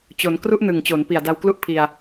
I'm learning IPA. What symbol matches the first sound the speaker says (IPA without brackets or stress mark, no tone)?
t͡ɕ